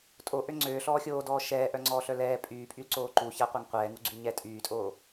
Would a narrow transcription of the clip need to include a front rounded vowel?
yes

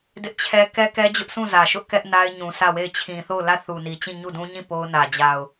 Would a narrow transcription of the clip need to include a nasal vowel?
yes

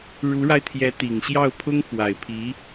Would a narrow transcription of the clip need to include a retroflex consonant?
yes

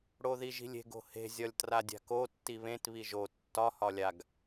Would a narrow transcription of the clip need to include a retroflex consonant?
yes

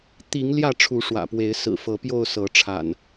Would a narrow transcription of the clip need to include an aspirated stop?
yes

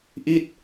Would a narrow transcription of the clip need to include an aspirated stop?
no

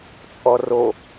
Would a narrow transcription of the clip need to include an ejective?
yes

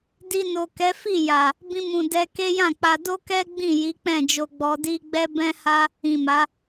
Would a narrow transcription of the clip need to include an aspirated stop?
no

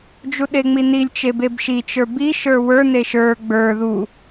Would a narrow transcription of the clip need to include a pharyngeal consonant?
no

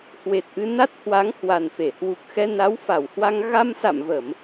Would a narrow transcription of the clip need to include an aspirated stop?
no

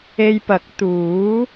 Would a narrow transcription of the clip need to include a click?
no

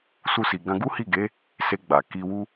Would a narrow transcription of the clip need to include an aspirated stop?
no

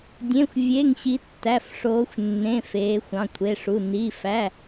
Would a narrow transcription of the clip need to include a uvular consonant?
no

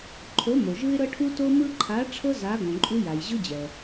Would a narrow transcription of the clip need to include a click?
yes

